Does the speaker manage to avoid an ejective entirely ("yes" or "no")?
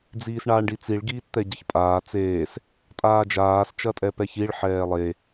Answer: no